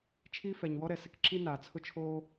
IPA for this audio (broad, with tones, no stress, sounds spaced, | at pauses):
t͡ʃʰ iː˥ f ɛ˩ ɲ w ɔ˥ ɾ ɛ˩ s ɪ˥ k ǁ i˥ n aː˩ t͡sʰ ʊ˥ t͡ʃʰ oː˥